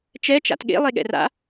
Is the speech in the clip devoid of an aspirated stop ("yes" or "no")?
yes